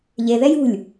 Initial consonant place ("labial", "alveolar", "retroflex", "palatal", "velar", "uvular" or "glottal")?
palatal